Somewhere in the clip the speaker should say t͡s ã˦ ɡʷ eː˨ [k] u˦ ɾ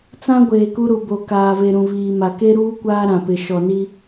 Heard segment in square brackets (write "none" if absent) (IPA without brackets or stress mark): k